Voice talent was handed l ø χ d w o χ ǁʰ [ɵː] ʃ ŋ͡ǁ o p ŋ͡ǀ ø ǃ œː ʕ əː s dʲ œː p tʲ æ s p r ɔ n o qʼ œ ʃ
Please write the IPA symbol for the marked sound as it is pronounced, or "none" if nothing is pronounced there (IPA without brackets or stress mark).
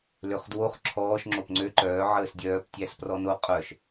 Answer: ɔː